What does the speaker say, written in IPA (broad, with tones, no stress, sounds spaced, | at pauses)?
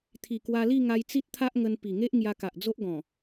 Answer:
t̪ʰ i˨˩ k w a˧ l i˥˧ ŋ a˧ j t͡s i˦ t̚ t̪ʰ a˦ ʔ ŋ ə˧ n p i˨˩ ŋ e˦ ʔ ŋ j a˧ k a˨ ʔ d͡z o˦ ʔ ɡ ɔ̃˨˩